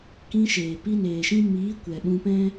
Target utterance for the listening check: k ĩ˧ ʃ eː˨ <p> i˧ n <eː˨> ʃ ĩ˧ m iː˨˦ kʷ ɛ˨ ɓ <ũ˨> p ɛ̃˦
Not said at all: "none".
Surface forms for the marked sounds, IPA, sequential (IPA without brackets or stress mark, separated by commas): p, eː˨, ũ˧